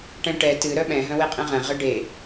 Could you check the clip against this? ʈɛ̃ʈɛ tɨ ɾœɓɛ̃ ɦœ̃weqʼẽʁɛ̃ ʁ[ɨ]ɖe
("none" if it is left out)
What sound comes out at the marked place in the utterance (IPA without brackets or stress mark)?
ɨ